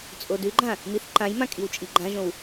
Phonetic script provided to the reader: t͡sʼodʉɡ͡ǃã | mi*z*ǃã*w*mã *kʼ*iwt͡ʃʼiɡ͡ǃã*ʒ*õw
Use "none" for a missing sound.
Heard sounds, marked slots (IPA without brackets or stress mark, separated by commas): θ, j, kʼ, ʒ